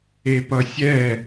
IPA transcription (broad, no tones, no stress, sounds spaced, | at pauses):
e p ʌ sʲ ɛ